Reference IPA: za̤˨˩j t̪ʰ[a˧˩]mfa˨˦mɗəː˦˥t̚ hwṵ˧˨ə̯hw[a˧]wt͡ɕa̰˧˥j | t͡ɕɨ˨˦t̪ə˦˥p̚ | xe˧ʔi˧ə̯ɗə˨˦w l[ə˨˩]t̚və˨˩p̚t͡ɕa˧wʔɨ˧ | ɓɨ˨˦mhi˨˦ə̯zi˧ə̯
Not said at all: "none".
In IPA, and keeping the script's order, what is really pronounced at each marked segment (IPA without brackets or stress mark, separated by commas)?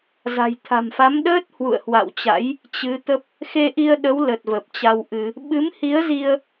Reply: a̤˨˩, a̰˧˨, ə˨˩